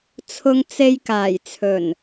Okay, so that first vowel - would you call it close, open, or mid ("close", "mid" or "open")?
close